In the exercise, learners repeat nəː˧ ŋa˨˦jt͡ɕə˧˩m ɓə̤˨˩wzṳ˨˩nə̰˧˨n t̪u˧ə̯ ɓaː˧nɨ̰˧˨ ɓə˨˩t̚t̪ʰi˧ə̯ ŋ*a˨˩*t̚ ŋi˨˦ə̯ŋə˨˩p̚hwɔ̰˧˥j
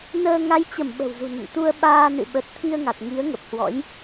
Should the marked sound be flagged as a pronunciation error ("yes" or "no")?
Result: no